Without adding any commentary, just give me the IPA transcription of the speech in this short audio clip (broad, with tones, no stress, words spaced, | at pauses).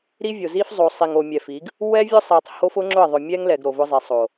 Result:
ɾi˦vʲo˨zi˦f zˤo˨ sˤi˨ŋo˨mʲɛ˨fi˨˦ɡ | wɛ˦vʲʊ˦sˤi˨tˤ ho˦fʊ˦ŋ͡ǁʊ˦˨ə̯ ðˤʊ˨mʲɛ˦ŋlɛ˨ɡ ɾo˨vʊ˦zˤi˨ sˤo˨